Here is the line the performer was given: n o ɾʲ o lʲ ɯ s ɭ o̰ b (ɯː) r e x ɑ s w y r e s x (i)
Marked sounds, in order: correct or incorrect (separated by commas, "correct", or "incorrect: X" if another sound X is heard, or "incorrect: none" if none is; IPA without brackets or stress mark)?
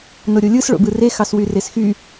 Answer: incorrect: ɯ, incorrect: y